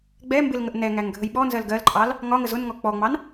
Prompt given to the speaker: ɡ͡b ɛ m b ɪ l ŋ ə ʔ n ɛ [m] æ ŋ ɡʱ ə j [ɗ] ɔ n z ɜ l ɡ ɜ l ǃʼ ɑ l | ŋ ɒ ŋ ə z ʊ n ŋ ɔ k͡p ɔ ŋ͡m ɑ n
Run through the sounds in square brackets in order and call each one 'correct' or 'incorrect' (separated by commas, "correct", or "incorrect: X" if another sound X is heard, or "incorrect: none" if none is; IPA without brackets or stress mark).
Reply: incorrect: ŋ, incorrect: ɓ